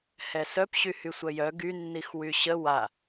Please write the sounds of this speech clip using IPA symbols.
hɛsœp ɕyhysʷœjœ ɡy nːixwyɕə wa

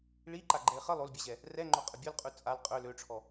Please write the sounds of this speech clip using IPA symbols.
ɭiǃaɡ͡ǃɛɪ̯ χə lˠolbʲɜʑɛ | rɛŋ͡ǃoqʼə bʲolqʼʉ t͡sʼal qʼø løʈ͡ʂʰɔ

